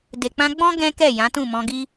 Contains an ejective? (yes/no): no